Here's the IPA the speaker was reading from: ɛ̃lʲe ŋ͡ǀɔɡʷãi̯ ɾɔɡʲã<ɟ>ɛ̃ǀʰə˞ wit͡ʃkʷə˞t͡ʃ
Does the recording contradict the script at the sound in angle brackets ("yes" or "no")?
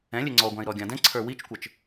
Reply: yes